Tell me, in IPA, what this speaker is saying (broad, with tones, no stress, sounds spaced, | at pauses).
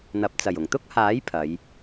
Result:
n̪ ɐ˨˥ p̚ t͡s ɐ˨˩ j ʊ˨˩ ŋ t̪ ʊ˥ k̚ h aː˨˥ j pʰ ɐ˨˧ j